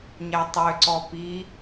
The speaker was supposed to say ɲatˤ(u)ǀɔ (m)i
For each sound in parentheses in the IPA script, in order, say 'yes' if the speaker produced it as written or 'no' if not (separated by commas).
no, no